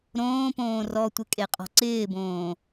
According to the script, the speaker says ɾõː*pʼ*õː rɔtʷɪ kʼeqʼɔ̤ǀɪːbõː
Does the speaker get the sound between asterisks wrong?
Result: yes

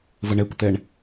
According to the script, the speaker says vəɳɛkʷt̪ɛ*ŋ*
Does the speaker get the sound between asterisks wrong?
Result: yes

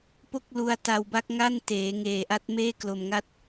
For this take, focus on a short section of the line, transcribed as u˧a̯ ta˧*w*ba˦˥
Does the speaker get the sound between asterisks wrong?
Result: no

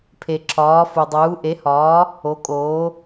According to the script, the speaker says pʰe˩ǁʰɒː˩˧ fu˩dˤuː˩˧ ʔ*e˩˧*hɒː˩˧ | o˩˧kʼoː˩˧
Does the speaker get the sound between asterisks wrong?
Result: no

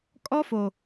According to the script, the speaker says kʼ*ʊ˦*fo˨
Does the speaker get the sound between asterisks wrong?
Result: yes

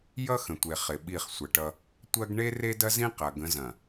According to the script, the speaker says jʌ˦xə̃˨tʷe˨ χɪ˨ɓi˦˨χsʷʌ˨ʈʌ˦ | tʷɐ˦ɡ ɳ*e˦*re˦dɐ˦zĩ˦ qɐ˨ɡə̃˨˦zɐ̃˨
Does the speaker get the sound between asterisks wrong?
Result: no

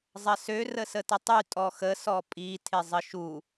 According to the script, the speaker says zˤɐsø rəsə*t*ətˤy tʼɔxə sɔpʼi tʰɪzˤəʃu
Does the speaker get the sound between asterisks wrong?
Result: no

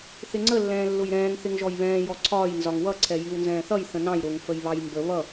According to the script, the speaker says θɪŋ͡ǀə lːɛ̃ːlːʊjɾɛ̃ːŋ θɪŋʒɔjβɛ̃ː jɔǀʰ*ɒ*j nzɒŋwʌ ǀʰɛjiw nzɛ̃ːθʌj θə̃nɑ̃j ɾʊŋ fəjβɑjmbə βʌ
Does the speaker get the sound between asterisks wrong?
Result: yes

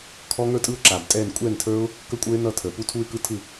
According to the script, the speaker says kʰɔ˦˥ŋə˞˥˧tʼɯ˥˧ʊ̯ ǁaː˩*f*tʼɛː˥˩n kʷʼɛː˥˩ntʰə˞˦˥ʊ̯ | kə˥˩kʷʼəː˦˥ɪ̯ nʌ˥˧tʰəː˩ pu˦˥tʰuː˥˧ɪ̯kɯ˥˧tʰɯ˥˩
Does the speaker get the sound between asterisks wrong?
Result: yes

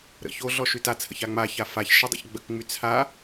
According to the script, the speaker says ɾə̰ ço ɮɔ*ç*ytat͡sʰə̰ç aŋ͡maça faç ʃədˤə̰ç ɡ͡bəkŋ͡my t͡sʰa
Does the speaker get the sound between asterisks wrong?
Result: yes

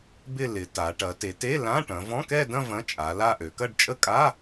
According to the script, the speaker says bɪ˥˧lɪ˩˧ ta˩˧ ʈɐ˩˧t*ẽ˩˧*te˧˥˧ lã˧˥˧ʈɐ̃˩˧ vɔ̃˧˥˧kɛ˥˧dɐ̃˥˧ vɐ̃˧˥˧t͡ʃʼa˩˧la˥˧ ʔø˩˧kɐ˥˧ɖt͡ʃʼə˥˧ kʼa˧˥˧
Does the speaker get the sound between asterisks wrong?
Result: yes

